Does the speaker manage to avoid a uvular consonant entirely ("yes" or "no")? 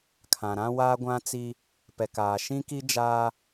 yes